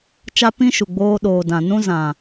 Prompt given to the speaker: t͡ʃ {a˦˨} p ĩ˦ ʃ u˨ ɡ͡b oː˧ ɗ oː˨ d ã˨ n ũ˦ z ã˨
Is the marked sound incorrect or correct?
incorrect